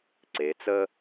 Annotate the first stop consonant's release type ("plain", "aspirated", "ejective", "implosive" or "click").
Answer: click